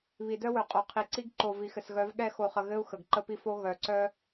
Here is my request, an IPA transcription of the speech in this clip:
β i˨ d œ˦ w œ˨ qʼ o˨ qʰ i˨ ǀ i˦ ɡ ǃ o˨ v i˨ x ɘ˨ s ɣ œ˨˦ v ɠ ɛ˦˨ x o˨ χ ə˨ ɣ ɘ˦ u̯ x ə˨ ɡ ǃ ə˦ p i˦ f o˦ ɣ œ˨ ǀ œ˦

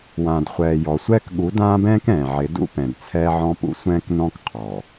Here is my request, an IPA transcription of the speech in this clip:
w ãː˨ d χʷ ɛː˨ j ɔ˨ sʷ ɛː˦ k ɠ u˨˦ d ãː˦ b ɛ̃ː˦ k ɛ̃ː˨ ʕ ɪ˨˦ d ṵ˦ p ɛ̃˨ d t͡sʰ ɛː˦ ʕ ɔ̃˦ p ṵ˦˨ sʷ ɛ̃ː˦ k n ɔ̃˦ k qʰ ɔ˨

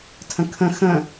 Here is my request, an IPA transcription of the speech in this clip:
tʰ ə̃ kʰ ə̃ x ə̃

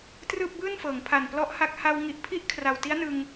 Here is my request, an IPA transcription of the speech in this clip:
t r ɯː˥˩ p̚ b ɯː˥˩ n f ɤː˩˦ ŋ pʰ a˨˩ n p l ɔ˦˥ ʔ h a˦˥ k̚ h a˧ w ŋ i˨˩ ʔ pʰ i˥˩ ʔ kʰ r a˨˩ w t i˦˥ a̯ n ɯ˧ ŋ

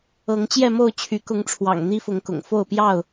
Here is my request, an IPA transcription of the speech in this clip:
ɤ˨˦ ŋ t͡ɕ j ɛ˥˨ m o˥˨ ʊ̯ t͡ɕʰ y˨˦ k ʊ˨˦ ŋ ʈ͡ʂʰ w ɑ̰˨˩ ŋ n̪ i˦ f ʊ˨˦ ŋ k ʊ̰˨˩ ŋ f o˥˨ ʊ̯ p j ɑ˥˨ ʊ̯

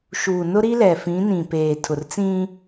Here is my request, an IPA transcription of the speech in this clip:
ʃ uː˨ n ʊ˦ ɾ i˦ l ɛ˨ f ĩ˨˦ n ĩ˨ p eː˨ tʰ ʊ˨ r t͡s ĩ˦

